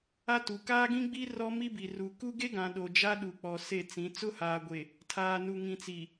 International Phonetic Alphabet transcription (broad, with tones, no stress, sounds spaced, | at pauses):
a˦ t u˨ k aː˦ ɡ ĩ˦ ɡ͡b i˦ r ɔ˦ m i˦ b i˨ r u˨ k u˦ ɡ e˦ ɡ ã˨ ɗ o˨ d͡ʒ a˦ ɗ u˨ k͡p ɔ˨ s e˦˨ t͡s ĩ˨˦ t͡s ʊ˦ h aː˨ ɡʷ e˨ | tʰ aː˨ n u˨ ŋ ĩ˨ t͡s i˨